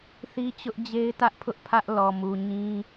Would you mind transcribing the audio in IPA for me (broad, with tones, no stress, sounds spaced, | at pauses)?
θ i˦ t͡ɕ ʊ˦ ʔ d͡ʑ e˦ ɪ̯ t ä˦ ʔ pʰ ʊ˦ ʔ pʰ ä˦ ʔ l ɔ˨ m u˨ ɲ ĩ˦